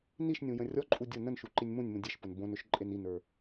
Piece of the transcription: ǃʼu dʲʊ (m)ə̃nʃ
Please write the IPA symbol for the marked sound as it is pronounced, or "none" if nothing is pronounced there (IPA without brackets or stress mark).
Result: n